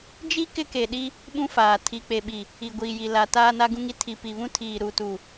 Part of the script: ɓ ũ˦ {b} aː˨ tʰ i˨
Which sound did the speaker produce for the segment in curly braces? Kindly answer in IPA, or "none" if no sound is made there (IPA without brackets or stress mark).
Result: f